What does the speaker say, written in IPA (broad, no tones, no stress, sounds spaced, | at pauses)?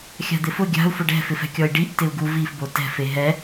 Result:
xʲ a̤ d̪ ɪ f ʊ ɡʲ a̤ u̯ f ʊ ɖ ɛ̤ f ɪ f ɛ̤ kʲ ɔ i̯ ɖ i ʔ t ɪ u̯ ɡ u v i f b o t ɛ̤ f e ɦ ɛ